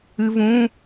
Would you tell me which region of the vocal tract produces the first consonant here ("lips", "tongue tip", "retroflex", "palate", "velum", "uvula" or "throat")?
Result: lips